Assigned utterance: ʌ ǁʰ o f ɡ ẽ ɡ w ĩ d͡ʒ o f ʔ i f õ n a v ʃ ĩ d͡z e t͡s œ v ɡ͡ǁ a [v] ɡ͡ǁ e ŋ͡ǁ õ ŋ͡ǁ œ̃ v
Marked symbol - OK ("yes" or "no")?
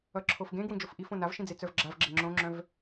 yes